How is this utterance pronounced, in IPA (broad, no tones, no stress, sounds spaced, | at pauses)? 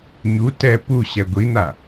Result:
ɲ u t ɛ p u ɕ ɛ ɡʷ i n̪ a